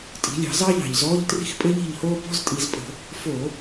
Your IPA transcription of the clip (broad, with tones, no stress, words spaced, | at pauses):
tʼi̤˩˧lʲɑ̤˧˩˧ zɑ˥ʎɑ̤˨˩ʎzɔː˧˥˧ʎ tri̤˥˩xpʼɘ˥ʎi̤˥˩ʎhoː˥ bɔ̤˧˥˧ztʼi˧˩˧zpʼə̤˧˩˧ | fo˧˩˧